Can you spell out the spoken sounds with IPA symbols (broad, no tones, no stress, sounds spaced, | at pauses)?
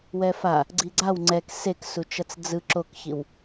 w ɛ f a | ɡ͡ǀ i ɡ͡ǀ a w ŋ͡ǀ ɛ k s e k s u t͡ʃ ʌ t͡s d͡z ɯ ǁ o k ç i w